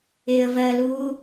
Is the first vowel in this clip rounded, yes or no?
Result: no